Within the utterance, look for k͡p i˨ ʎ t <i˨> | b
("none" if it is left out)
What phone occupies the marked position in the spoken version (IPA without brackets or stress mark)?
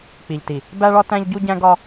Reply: i˨